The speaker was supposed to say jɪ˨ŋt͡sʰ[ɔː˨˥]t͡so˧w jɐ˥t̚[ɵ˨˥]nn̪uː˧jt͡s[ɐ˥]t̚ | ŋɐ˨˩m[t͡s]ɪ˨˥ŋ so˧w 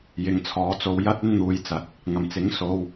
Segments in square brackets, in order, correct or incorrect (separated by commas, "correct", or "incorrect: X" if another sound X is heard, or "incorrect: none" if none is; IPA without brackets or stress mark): correct, incorrect: ɵ˥, incorrect: ɐ˨˥, correct